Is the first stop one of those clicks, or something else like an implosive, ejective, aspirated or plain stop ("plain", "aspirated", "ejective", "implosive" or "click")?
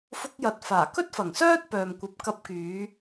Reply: plain